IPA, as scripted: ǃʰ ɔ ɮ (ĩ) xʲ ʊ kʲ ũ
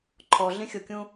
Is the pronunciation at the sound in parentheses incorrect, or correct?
correct